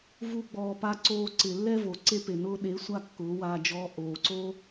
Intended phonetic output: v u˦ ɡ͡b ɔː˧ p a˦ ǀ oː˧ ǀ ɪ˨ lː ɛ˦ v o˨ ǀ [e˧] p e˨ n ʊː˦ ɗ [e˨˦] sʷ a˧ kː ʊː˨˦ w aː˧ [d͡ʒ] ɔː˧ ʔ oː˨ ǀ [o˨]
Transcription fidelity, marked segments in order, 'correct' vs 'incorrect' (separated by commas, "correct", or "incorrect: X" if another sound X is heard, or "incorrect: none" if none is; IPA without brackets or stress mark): incorrect: e˦, correct, correct, incorrect: o˦